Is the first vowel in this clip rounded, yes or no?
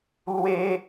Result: no